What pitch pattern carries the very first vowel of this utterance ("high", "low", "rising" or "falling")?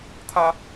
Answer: high